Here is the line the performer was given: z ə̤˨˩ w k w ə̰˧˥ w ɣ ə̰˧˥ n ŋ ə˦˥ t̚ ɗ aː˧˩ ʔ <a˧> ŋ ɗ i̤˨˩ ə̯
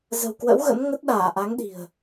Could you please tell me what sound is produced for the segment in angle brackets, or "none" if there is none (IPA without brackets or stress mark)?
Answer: a˨˦